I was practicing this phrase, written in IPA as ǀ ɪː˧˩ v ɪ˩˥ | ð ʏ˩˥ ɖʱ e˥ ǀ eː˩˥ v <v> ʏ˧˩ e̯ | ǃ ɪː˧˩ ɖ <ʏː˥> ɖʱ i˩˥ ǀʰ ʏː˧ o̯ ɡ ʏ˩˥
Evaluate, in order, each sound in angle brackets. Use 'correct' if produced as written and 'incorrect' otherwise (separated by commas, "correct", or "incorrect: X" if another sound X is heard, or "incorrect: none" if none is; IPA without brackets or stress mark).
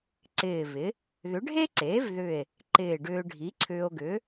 incorrect: ð, incorrect: ʏː˧